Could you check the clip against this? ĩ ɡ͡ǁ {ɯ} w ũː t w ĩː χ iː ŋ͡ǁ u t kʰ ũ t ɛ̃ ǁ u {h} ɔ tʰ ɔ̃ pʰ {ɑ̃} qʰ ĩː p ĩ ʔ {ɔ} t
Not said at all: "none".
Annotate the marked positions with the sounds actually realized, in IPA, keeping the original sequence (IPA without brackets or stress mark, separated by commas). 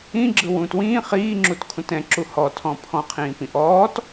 ɯ, h, ɔ̃, ɔː